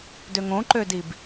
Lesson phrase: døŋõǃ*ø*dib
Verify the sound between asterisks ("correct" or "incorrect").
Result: correct